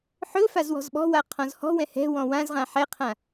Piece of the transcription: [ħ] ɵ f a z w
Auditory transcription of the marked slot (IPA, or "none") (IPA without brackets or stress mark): ħ